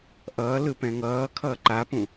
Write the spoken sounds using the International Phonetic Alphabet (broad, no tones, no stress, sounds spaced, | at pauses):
ʔ ʌː l ɯ p ɛ̃ ŋ ʌː kʰ ʌː ǃ a p ũ